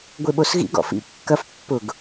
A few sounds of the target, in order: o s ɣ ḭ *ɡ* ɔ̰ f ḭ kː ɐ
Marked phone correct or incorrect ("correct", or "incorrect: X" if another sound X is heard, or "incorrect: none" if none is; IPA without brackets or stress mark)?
correct